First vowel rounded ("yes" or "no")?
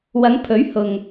no